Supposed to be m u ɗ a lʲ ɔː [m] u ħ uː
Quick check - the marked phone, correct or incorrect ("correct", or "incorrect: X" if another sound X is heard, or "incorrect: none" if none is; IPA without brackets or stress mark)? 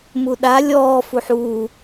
incorrect: f